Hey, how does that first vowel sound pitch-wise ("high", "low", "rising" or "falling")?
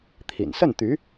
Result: low